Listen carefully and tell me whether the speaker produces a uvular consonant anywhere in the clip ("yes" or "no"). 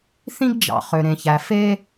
yes